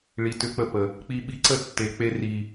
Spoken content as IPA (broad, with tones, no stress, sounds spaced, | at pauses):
ɭ i˨ t ʏ˧ k͡p ə˧ p ə˨ | k͡p i˧ ɓ i˧ ǀ ə˦˨ tː e˨ k͡p e˧ r i˨